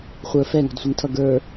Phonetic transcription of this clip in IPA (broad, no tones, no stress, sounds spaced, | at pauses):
χʷ ə˞ f ɛ ŋ ɔ̤ d sʷ ɛ ŋ tʰ ʌ ɡ ə˞